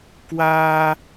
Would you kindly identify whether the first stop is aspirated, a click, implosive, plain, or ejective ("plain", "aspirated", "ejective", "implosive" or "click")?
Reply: plain